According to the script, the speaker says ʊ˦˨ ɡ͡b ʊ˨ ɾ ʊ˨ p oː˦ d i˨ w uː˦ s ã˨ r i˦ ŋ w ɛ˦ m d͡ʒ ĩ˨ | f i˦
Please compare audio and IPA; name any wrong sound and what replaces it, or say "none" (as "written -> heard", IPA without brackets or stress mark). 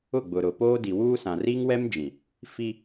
none